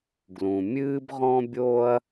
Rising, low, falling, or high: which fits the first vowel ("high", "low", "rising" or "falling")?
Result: low